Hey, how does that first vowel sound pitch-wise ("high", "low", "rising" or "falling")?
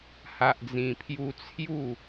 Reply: low